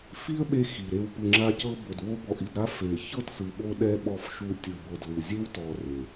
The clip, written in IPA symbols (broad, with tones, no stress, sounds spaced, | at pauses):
f i˦ ə̯ ɓ e˧ x i˨ ɾ e˧ w p ɯ˨ ŋ͡ǁ a˧ c ɤ˧ b o˨ d w o˦ b ɔ˧ ʔ i˧ d ɾ a˦ f e˨ ç ɤ˦˨ t s ɯ˨ ɓ o˧ ɗ ɛ˧ ɓ ɔ˧ f ʃ u˧ tʲ ɯ˨ b ɤ˨ d l u˨ zʲ e˦ w t ɔ˧ r e˨